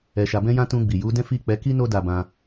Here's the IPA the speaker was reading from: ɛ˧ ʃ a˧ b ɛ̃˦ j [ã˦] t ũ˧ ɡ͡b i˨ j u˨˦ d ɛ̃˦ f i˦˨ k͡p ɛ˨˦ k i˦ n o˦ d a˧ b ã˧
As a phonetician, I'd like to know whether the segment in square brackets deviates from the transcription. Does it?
no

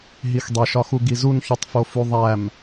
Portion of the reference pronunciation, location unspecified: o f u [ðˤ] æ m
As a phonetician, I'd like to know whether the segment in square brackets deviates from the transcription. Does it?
no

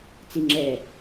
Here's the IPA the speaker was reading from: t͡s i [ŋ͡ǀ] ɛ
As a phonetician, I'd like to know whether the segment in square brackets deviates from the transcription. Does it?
yes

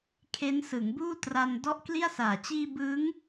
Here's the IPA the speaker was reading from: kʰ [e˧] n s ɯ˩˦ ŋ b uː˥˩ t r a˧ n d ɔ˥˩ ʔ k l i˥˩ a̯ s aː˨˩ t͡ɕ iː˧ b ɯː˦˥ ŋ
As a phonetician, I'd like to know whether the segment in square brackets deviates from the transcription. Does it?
yes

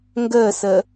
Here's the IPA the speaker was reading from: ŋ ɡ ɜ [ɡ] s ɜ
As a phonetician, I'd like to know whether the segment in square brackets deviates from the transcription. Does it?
yes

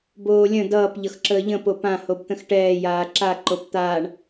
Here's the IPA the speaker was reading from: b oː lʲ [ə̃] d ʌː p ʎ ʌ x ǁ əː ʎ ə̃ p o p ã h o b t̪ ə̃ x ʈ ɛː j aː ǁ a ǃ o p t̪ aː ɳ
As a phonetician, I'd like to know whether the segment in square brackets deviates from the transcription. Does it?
no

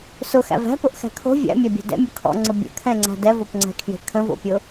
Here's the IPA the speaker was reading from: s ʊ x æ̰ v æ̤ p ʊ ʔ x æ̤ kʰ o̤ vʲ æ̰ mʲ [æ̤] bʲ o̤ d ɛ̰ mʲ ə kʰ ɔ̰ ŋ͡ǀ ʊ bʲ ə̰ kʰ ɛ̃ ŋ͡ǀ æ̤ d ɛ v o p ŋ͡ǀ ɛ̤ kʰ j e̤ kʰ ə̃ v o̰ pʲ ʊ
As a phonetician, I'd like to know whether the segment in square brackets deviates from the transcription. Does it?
yes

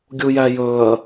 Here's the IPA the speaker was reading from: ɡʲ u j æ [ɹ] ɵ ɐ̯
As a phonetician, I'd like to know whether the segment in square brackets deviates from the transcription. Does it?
yes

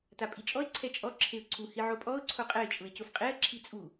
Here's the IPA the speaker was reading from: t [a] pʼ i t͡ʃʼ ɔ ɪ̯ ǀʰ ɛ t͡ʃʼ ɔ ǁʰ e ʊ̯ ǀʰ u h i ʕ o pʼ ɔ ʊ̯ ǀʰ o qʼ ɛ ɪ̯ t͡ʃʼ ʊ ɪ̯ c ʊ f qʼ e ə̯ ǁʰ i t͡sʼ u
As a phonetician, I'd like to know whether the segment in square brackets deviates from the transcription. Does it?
no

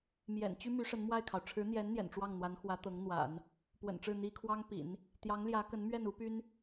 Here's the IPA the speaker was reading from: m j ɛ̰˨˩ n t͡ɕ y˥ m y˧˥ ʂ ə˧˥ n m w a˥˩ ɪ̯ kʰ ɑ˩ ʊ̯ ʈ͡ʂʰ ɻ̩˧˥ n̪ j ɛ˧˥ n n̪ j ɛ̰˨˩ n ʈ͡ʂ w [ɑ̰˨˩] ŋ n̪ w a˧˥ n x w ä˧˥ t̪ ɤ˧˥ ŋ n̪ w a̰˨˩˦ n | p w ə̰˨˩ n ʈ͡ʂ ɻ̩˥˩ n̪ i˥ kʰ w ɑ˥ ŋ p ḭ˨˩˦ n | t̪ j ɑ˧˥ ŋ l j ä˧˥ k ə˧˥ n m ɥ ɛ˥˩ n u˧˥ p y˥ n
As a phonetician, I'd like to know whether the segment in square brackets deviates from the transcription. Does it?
yes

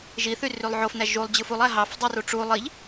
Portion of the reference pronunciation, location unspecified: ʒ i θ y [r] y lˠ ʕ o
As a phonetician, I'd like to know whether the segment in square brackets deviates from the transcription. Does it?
no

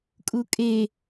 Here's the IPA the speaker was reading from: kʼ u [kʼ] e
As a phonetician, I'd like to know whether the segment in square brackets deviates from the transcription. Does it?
no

